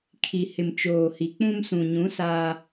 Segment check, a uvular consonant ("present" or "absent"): absent